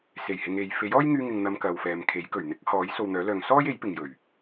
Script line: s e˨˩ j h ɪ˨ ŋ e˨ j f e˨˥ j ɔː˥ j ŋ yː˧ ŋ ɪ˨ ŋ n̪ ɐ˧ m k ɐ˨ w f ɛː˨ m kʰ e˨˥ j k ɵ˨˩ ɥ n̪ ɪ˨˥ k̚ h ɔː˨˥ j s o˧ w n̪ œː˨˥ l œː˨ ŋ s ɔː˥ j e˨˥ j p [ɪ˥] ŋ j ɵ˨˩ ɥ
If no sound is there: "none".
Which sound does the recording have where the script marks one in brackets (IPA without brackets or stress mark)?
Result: ɪ˨